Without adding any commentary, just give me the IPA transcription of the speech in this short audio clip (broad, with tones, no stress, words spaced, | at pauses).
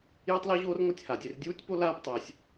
je˥tˤlo˥ʑoː˥r ŋʷa˥tʲha˩dʲe˧r dʲuː˥tʲpo˥ laː˥ptˤɛː˩sʲ